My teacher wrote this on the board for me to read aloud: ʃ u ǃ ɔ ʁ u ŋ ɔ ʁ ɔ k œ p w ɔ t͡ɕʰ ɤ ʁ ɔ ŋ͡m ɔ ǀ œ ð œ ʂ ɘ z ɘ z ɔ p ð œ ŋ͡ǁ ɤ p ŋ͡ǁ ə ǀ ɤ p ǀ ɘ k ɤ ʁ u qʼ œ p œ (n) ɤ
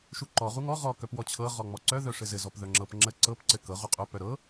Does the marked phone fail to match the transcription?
yes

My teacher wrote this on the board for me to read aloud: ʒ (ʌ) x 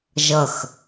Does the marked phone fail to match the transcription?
no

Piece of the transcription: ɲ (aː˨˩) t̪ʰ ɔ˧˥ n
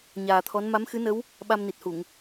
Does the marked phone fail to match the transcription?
no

